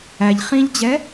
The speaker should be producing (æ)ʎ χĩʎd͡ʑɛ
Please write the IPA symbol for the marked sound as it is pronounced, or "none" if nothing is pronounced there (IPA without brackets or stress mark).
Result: æ